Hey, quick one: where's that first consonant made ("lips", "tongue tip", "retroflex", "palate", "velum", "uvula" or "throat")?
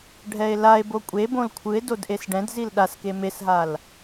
retroflex